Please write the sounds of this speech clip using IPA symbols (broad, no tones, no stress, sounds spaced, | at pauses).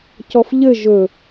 c ɔ f ʎ ɘ ʒ ɵ